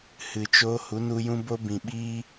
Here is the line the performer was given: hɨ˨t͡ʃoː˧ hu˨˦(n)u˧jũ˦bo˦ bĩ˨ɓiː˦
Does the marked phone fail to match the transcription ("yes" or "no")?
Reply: no